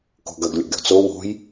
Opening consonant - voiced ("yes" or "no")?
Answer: no